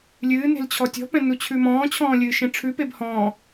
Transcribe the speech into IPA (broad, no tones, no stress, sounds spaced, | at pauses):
lʲ ɨː n e̤ l t͡ɕʰ ɔ tʲ ɔ̤ p ɛ̃ n u t͡ɕʰ ʉ m ɔ̃ː t͡ɕʰ ɔ̃ː lʲ ɨː ʃ ẽ ʈ͡ʂʰ ʉ p e b h ɔ̃ː